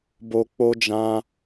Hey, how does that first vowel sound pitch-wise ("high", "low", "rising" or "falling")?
low